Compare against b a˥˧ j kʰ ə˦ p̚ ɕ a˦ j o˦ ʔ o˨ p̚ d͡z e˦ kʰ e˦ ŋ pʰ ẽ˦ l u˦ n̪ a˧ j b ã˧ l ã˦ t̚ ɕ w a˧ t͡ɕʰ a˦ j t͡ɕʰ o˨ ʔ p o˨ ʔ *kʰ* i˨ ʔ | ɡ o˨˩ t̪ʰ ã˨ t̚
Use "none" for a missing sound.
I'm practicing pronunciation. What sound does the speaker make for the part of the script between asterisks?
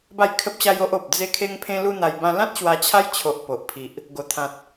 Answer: pʰ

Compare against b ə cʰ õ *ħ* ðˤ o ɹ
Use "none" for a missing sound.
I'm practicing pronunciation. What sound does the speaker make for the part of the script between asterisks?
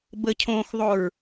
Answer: x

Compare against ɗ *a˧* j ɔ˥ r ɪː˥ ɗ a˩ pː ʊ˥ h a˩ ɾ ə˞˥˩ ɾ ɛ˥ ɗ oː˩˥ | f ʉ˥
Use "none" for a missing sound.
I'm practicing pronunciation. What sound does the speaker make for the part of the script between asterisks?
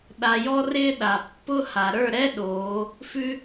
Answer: a˧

